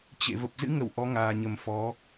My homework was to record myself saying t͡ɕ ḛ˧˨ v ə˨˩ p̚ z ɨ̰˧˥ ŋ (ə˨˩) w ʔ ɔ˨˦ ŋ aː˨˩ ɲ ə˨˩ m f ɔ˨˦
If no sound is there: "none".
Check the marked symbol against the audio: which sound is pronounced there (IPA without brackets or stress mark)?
ə˧˩